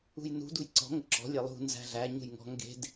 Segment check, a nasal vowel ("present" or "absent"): absent